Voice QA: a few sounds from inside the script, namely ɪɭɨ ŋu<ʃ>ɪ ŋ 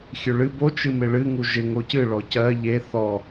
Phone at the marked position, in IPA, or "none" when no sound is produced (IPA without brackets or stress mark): ʒ